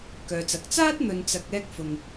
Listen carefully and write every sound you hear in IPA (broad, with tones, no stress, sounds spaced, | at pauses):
k œː˨ t͡s ɐ˨˥ k̚ t͡s aː˥ t̚ n̪ ɵ˨ n t͡s ɐ˨ k̚ ɛː˧ k̚ f ʊ˨ ŋ